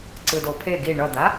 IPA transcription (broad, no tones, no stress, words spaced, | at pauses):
ǀɯdopʰe ɡi ɳʌd̪a